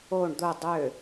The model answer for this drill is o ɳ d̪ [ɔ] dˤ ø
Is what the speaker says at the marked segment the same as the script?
no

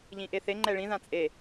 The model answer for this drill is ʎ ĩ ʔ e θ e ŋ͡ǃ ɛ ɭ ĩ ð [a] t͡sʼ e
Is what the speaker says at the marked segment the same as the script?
no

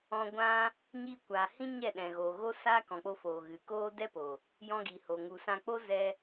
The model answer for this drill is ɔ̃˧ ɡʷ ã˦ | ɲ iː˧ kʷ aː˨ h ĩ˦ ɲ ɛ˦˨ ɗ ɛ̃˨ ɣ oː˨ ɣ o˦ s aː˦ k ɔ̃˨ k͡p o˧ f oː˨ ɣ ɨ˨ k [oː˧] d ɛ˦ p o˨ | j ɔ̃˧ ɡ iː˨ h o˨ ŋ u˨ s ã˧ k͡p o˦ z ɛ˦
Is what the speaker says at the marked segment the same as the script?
no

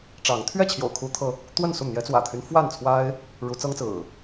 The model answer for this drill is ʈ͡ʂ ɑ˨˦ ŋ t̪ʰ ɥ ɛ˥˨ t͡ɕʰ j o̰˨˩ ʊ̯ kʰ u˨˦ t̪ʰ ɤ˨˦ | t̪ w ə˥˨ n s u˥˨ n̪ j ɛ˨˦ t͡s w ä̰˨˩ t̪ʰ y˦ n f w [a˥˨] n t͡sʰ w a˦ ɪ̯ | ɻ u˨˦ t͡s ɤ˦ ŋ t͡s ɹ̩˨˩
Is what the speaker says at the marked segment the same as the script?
yes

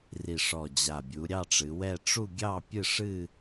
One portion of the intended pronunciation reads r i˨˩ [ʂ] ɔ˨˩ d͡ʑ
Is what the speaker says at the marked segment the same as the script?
yes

